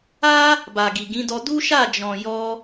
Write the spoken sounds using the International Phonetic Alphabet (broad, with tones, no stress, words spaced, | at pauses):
a˦ | ba˨ɡi˨ɡĩ˨˦dɔ˧ du˦ʃa˦˨d͡ʒɔ̃˨ jɔ˧